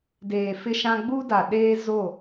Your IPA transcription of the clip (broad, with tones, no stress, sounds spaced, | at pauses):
d eː˨ f ɪ˦ ʃ ã˦ ɡ͡b u˦ d a˨ ɗ eː˦ z o˦˨